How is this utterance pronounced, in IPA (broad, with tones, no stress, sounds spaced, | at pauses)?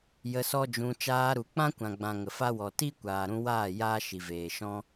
j ə˧ s ɔ˦ d͡ʒ ũ˧ t͡ʃ aː˧ ɾ u˨ k͡p ã˦ kʷ ã˨ ɡ͡b ã˨ ŋ ə˨ f a˦ w ɔ˨ t i˦ kʷ aː˨ ɾ ũ˧ w aː˦˨ j aː˦ ʃ i˨ v eː˨ ʃ ɔ̃˦